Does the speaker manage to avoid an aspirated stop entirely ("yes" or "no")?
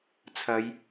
no